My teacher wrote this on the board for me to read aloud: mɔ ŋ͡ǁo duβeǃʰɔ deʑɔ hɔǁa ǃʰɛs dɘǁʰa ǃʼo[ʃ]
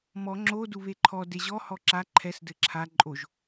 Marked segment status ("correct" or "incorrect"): incorrect